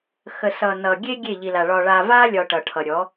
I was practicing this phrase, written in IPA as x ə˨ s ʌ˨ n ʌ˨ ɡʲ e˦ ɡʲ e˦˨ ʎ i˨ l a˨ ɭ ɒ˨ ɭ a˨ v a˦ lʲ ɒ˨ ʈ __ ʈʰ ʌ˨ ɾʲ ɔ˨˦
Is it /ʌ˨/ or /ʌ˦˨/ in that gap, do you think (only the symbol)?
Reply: ʌ˨